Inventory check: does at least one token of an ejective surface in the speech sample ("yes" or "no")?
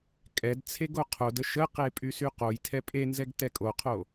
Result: yes